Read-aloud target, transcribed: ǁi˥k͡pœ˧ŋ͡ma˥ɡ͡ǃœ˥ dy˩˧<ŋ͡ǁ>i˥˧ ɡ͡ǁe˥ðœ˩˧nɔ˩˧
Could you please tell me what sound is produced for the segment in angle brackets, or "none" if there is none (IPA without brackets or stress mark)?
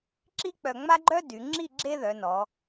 ŋ͡ǁ